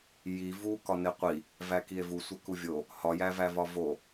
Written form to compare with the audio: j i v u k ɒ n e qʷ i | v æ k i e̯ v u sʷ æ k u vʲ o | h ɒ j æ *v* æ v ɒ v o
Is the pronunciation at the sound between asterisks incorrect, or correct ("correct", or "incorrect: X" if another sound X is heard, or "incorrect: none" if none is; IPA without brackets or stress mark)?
correct